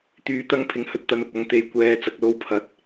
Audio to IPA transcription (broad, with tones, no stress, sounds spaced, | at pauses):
t̪ yː˧ t̪ ɐ˥ ŋ pʰ ɪ˧ ŋ h ɵ˧ t̚ t̪ ɐ˧ n ʊ˨ k̚ ɐ˧ ŋ t̪ e˨ j kʷ ɛː˨˧ t͡s ɐ˧ k̚ l o˧ w pʰ ɐ˨˥ t̚